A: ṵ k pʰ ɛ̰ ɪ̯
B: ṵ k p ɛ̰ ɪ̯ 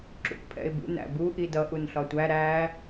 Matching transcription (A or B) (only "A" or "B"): A